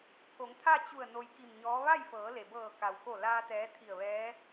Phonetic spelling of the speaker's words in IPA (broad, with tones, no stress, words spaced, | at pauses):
pʰo˩˧ŋt̪ʰa˥˨t͡ɕu˧˩ə̯ no˧jki˧˩mɲɔː˧˥ ʋa˥˨jfɤː˩˧le˩bɤː˧˩ ka˩wko˧˩laː˧ t̪ɛː˧˥t̪ʰi˧˩ə̯ʋɛː˧˥